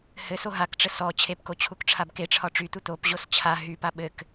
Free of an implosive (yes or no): no